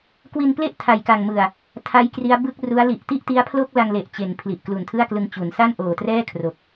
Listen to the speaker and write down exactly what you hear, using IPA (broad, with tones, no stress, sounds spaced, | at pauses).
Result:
k w i˧ n p l e˥˩ ʔ tʰ a˨˩ j k a˨˩ ŋ m ɯ˨˩ a̯ | tʰ a˦˥ j k r i˦˥ a̯ b ɯ˥˩ k̚ r u˦˥ a̯ l i˨˩ ʔ t i˥˩ ʔ t i˦˥ a̯ pʰ l o˥˩ k̚ l a˧ ŋ l e˨˩ ʔ t͡ɕ e˨˩ n pʰ l i˨˩ ʔ k l u˨˩ n tʰ ɯ˥˩ a̯ k l ɯ˧ ŋ t͡ɕ u˩˦ n s a˥˩ n ʔ oː˨˩ t r ɛː˥˩ kʰ r o˨˩ k̚